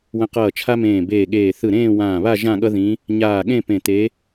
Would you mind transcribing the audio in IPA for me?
w ə̃˧˥ q ʌː˧˩ t͡ʃʰ a˥ m ẽː˧˩ b eː˧˩ ɠ eː˧˩ θ ɯ˧˩ ɾ ẽː˥˧ w ãː˧˩ β a˥˧ ʒ ã˥˧ ɠ ʌ˥ ð ĩ˧˥ | ɲ aː˧˩ ɠ ẽ˥˧ p ẽ˧˩ t̪ e˧˥

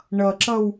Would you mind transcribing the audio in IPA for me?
ɳ ʌ ǁ ʌ w

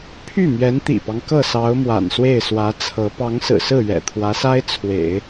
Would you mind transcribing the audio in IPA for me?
pʰ y˥˩ m ɥ ɛ˧˥ n t̪ ḭ˨˩ p ɑ˦ ŋ k ɤ˥˩ s ɑ˧˥ ʊ̯ m w a̰˨˩ n s w e˥˩ ɪ̯ s w ä˧˥ t͡sʰ ɤ˧˥ p ɑ˧˥ ŋ s ɹ̩˨˩ s ɹ̩˥˩ ɥ ɛ̰˨˩ t̪ʰ w ä˧˥ s a˥ ɪ̯ t͡sʰ w ḛ˨˩˦ ɪ̯

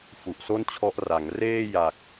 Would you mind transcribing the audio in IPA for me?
f u˨˩ ʔ s o˥˩ n t͡ɕʰ ɔ˦˥ ʔ r a˩˦ ŋ r eː˥˩ j a˨˩ k̚

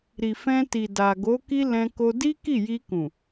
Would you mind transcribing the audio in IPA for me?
ɾ i˨ f ɛ̃˧ t i˨ d a˨ ɡ o˨˦ k i˦ l ɛ̃˧ k o˧ d i˦ k i˦˨ j i˧ k ũ˨

